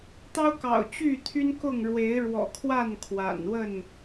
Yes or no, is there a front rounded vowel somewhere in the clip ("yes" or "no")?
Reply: yes